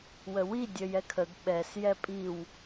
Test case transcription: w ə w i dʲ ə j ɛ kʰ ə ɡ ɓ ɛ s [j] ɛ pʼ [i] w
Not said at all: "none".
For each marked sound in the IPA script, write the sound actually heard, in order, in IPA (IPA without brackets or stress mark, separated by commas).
j, i